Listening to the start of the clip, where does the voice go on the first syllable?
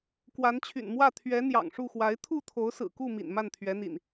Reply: rising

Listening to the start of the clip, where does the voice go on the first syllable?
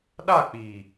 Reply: falling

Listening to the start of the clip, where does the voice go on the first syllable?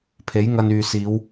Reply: rising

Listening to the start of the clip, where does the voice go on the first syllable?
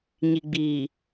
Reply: low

